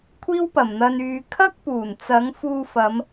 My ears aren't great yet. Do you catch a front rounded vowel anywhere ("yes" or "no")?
yes